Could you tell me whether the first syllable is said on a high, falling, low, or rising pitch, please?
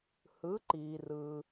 rising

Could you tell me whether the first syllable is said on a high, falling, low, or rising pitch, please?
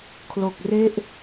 low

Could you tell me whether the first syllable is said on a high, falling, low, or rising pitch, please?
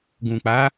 low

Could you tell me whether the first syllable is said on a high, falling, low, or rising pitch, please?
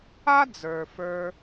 high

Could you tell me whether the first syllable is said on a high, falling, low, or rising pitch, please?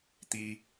high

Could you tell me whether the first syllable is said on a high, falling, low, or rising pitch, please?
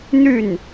falling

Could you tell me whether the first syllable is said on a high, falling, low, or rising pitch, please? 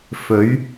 rising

